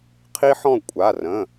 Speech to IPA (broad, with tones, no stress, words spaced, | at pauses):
qʰi˦ħɔ̃˦˨ kʷʼa˩˧˩rə̃˩˧˩